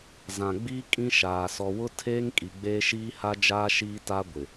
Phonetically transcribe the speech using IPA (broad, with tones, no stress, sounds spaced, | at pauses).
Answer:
z ã˨ ɡ͡b iː˦ kʼ ĩ˦ ʃ aː˨ s ɔ˨ w ʊ˦ tʰ eː˦ ŋ kʼ i˨ ɡ͡b eː˦ ʃ iː˦ h a˦ d͡ʒ aː˦ ʃ iː˦ t a˦ ɡʷ ɪ˨